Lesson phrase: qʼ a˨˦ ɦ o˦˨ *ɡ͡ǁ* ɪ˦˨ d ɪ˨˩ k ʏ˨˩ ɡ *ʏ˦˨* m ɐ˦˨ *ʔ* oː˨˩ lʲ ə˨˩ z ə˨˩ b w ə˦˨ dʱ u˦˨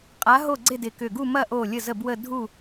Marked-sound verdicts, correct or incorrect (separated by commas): incorrect, incorrect, correct